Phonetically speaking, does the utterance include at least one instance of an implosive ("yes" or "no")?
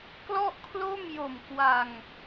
no